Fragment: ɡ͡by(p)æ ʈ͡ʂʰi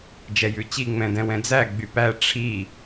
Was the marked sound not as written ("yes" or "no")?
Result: no